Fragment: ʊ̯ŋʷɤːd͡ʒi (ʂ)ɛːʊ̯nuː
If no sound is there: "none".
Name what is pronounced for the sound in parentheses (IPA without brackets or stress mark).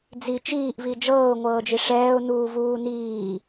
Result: ʂ